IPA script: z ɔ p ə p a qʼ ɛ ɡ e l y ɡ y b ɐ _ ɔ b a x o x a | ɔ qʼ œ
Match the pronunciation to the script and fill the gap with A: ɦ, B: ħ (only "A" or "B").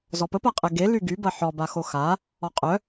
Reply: B